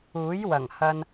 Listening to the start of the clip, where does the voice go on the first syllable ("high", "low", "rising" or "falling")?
rising